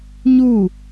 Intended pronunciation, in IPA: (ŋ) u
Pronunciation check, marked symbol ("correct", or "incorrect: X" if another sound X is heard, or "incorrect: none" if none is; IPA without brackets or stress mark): incorrect: ɲ